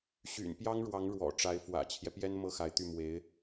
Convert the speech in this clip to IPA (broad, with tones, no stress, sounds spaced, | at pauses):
ɕ y̰˨˩ n p j ɑ˥ ŋ ɻ w ɑ˧˥ ŋ ɻ w ɔ̰˨˩ ʈ͡ʂ a˧˥ ɪ̯ f w ä̰˨˩ t͡ɕʰ j ɛ˦ p j ɛ˥ n m ɤ˥ x a˧˥ ɪ̯ t̪ y˥˩ m w e˧˥ ɪ̯